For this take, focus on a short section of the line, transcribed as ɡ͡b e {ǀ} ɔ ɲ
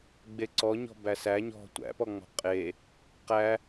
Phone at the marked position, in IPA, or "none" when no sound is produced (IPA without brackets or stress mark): ǀ